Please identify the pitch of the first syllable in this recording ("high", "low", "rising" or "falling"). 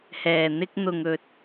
low